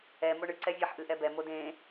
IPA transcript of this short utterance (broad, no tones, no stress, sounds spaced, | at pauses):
ɛ m o ɳ ɨ ǀ ɛ vʲ ʌ ħ ʔ ɨ ʔ ɛ b ɛ m o d ẽ